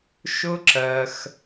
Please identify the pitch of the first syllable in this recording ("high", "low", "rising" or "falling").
high